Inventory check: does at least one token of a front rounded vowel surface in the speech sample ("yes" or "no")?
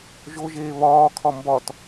no